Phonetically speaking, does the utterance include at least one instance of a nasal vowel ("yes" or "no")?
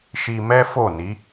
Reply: no